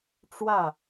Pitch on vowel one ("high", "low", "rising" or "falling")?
falling